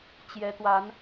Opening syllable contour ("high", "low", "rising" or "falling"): rising